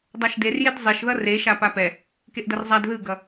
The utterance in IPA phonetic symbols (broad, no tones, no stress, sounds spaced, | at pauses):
dˤ a ʃ d e r j e d zˤ e ʃ ð ʌ r e ʃ a p a p ɛ | k e ʔ d ʌ r zˤ a d ð ɯ ɡ ʌ